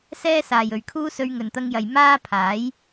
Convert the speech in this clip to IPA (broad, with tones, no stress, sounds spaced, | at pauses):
s ɛː˥ s aː˨ j ɵ˨ ɥ kʰ uː˥ s ɵ˧ ɥ ŋ ɵ˨ n t̪ ɐ˧ ŋ j ɐ˨ j m aː˥ pʰ aː˨˥ j